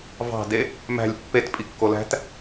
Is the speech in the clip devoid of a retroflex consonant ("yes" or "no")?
yes